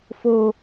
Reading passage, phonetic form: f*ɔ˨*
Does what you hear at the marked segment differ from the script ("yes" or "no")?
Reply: yes